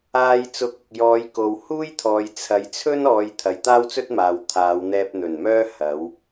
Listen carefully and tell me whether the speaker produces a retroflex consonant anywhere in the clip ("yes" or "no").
no